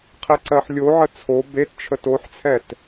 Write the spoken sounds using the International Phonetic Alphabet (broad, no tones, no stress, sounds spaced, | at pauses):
qʰ e ǀ ɜ ħ lʲ o ʕ ə t͡sʰ o b e t t͡ʃʰ ə t o ħ t͡sʰ ɛ t